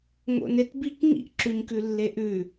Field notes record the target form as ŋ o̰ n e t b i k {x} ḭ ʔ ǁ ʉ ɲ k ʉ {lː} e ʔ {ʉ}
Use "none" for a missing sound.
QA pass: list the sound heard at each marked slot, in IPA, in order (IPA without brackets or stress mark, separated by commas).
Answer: ŋ, lː, ʉ